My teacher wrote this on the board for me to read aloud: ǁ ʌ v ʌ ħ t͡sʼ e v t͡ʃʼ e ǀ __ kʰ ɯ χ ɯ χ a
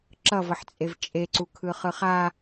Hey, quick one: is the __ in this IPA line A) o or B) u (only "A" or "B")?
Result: B